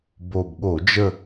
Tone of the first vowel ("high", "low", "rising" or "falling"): low